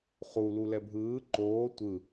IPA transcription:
χu lulɛbʱɯː ǃoː tʷɯ

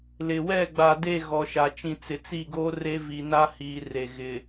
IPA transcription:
lɪ˨wɛ˦˨ ɡ͡ba˨de˦˨ ɣɔ˨ʃa˨ t͡ʃĩ˨t͡sɪ˨t͡si˦˨ɡoː˦ re˦vi˨na˦ hiː˨re˨ɣɪ˨

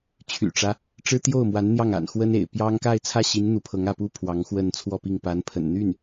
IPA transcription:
t͡ɕʰy̰˨˩ʈ͡ʂä˦ | ʈ͡ʂɻ̩˥t̪jo˥˩ʊ̯mwa˧˥n n̪jɑ˥˩ŋa̰˨˩nxwə˥nḛ˨˩ɪ̯ pjɑ˥ŋ ka˥˧ɪ̯t͡sʰä˥˩ɕi˧˥n n̪u˧˥pʰɤ˧˥ŋä˥˩pu˥ pʰwɑ˧˥ŋxwə˥˧nt͡sʰwɔ˥˧pi˥˩ŋ pa˧˥npʰə̰˨˩nn̪y˥˩n

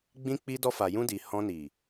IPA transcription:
ɡ͡bĩ˧ k͡pi˧dɔ˧fa˨jũ˧ di˨ hɔ̃˧ni˨

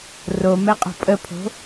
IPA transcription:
romɛqʼo̤ pʼəpʰo̤

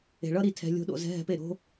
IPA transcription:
e̤˨ɭʌ˦ɾi˧ tʰɛ̤˧lʲo̤˧ ɗo̰˨zɛ̤˧ ɦɛ̤˧pe˦˨ ɾo̤˧

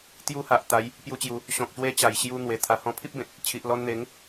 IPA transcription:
t̪ju˧ha˨ʔ t̪a˨˦j | pju˧t͡ɕju˨˦ | ɕɔ̃˨k̚ɕwe˧ t͡ɕa˨˩jɕju˧n̪we˨˩ t̪ʰa˨˩hɔ̃˧pʰi˦p̚bẽ˨t̚ | t͡ɕʰi˨ʔlɔ˧nn̪e˨˦ŋ

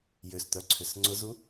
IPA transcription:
jʏst̪œǀʰʏs ŋ͡ǀʊzu

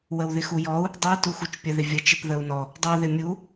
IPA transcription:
wəwðɪxujɔu̯ | dˤui̯ tuxut͡ʃpʲə ðɪvʲə t͡ʃɪpðəu̯nɔ | dˤɪu̯ ðɪmʲu

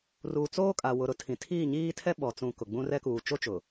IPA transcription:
ruː˨t͡soː˦kʼa˨ wʊ˨ɾʊ˦ tʰĩ˨ tʰiː˦˨ɲiː˦tʰɛ˦ ɓɔ˨t͡sũ˨ kʊ˨ɡ͡bũ˦ rɛ˦kuː˨ t͡ʃo˦t͡ʃʊ˨

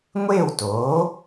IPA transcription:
ŋʷeː˥˨wtoː˩˥

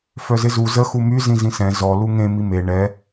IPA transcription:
fœzɪzu zə xumy zĩzĩsɛ̃ zɔ luŋẽ mime ɳɛ

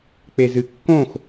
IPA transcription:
k͡pezɨkːõx

